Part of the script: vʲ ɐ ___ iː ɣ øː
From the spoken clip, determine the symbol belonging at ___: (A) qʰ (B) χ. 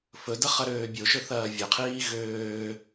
A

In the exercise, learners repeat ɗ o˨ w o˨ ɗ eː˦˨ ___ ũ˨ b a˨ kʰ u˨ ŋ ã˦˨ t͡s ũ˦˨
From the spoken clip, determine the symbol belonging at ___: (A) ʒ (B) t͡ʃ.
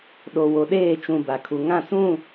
B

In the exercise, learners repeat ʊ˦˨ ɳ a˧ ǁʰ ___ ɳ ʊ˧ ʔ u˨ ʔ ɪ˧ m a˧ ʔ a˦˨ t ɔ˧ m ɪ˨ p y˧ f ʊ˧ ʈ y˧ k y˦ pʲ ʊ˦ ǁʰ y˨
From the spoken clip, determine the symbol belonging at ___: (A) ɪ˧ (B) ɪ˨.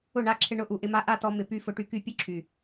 A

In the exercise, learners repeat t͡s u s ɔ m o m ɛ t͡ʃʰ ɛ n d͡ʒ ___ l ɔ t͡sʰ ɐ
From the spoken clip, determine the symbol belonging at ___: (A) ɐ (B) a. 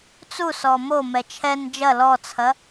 A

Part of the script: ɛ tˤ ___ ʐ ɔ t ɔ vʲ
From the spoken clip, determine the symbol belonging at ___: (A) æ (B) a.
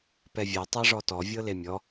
B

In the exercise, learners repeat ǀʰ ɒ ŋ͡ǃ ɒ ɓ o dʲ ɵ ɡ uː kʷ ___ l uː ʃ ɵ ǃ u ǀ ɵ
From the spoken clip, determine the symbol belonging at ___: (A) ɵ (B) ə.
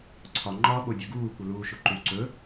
B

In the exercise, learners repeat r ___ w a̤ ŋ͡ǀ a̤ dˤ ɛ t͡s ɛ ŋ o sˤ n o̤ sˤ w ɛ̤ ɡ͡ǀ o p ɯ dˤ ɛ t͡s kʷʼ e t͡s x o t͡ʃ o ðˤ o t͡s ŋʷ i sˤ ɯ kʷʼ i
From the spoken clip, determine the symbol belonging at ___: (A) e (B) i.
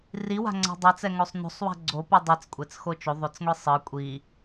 B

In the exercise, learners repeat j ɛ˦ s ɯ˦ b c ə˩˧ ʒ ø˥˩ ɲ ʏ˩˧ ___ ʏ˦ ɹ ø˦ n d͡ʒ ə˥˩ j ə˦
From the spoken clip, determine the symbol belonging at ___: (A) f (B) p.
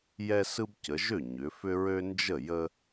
A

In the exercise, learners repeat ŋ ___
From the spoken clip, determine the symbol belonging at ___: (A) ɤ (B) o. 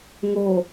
B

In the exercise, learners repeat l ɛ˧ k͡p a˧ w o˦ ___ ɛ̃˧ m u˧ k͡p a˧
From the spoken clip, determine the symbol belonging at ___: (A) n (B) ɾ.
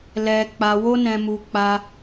A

